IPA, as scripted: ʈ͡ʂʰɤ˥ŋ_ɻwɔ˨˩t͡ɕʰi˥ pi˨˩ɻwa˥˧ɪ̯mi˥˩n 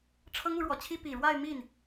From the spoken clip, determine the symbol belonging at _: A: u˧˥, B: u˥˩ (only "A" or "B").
A